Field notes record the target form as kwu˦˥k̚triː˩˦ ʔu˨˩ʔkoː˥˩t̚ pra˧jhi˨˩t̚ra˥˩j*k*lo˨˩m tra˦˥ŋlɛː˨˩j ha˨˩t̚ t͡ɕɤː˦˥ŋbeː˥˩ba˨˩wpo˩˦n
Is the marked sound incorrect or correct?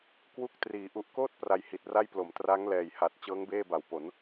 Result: incorrect